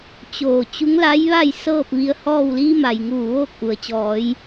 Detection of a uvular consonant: absent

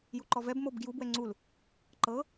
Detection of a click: present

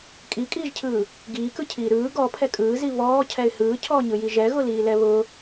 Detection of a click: absent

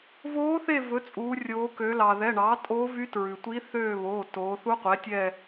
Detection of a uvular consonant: present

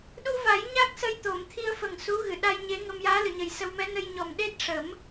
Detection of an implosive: present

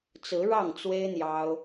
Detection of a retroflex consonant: present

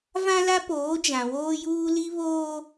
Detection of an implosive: absent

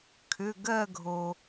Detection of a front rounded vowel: present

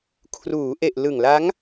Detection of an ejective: absent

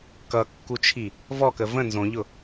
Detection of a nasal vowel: present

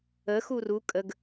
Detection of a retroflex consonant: absent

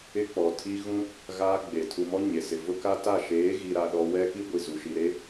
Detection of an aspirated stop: present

